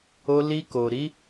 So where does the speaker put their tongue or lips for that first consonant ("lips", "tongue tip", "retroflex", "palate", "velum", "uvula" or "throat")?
tongue tip